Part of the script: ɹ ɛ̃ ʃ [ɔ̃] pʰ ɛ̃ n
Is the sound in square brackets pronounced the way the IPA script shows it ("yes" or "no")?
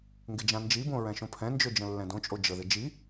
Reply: no